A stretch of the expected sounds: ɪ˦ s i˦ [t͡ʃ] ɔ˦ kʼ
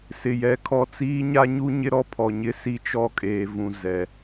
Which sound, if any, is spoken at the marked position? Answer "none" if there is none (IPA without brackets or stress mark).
t͡ʃ